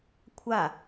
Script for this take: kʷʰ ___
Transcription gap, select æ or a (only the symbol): a